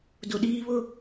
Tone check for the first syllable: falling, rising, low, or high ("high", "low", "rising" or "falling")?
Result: high